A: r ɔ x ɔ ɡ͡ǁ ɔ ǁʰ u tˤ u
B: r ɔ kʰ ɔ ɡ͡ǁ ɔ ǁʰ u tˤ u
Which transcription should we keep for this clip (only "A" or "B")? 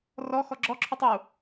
A